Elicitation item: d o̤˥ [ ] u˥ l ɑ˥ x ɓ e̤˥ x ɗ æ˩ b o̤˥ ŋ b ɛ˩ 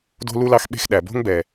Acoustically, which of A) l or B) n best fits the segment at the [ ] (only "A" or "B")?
A